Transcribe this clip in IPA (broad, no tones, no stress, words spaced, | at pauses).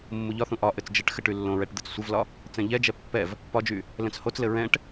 mːuʎɒθũ ʔɒ ʔɘt͡sd͡ʒɘʈxɘ ʈylːõɹɛʈ d̪ɘt͡ssʷɘvlɒ | t͡sɛ̃ʎɛd͡ʒɛ pːɛv | pɒd͡ʒy | lɛ̃t͡shot͡slɘ ɹɛ̃ʈ